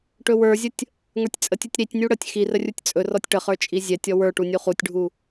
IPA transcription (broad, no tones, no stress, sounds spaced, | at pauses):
ʈ ɵ w ə˞ zʲ ə tʲ | ŋ ə˞ tʲ t͡sʼ ə tʲ u tʲ ɾ i tʲ nʲ u ɽ ə tʲ x i r ə rʲ u tʲ t͡sʼ ɵ r ɔ tʲ ʈ ə χ ə˞ t͡ʃʼ i zʲ ɛ tʲ ɔ w ə˞ ʈ u nʲ u χ u tʲ ɖʱ u